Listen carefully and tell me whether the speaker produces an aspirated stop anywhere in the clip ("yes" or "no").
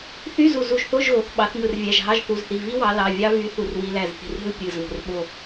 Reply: no